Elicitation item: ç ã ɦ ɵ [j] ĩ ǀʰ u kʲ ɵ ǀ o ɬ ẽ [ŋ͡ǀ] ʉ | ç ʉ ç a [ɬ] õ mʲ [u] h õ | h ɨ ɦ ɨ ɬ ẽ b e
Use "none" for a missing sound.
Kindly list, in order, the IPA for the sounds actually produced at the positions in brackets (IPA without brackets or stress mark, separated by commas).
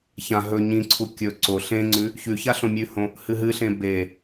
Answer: ɲ, ŋ͡ǀ, ɬ, ʉ